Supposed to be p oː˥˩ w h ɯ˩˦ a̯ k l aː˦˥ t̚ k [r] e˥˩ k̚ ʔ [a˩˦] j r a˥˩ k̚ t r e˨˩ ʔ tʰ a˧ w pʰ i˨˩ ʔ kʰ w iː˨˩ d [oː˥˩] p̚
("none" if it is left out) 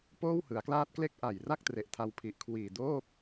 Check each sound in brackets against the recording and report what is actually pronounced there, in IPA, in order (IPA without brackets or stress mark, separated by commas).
l, a˨˩, oː˥˩